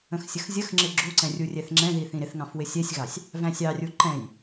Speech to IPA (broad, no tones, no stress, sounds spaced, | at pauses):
ə̃ x sʲ ə x zʲ ə x ŋ͡ǁ ɪ ɡ͡ǁ u ǀ ɛ̃ rʲ u rʲ ɛ θ ŋ͡ǁ ɛ̃ ð i θ ĩ ɾ ɪ θ ŋ ɑ̃ f w ɪ sʲ ɛ sʲ ɣ ɑ sʲ | v æ̃ sʲ ɑ rʲ u ǃ ɛ̃ j